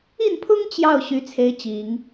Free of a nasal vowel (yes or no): yes